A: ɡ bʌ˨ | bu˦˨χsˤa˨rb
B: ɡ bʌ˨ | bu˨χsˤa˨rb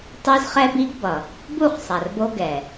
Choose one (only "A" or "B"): A